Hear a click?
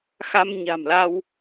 no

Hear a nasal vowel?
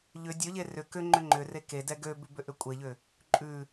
no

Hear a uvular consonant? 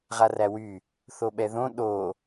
yes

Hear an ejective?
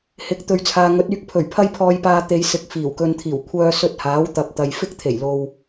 no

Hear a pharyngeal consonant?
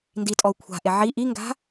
yes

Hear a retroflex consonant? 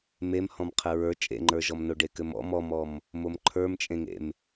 yes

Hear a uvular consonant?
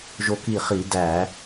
yes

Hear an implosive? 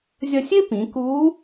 no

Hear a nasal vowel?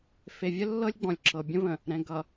yes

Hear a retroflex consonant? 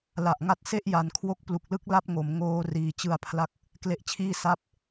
no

